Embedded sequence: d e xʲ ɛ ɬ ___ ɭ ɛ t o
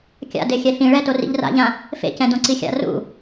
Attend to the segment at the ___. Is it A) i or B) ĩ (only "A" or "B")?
B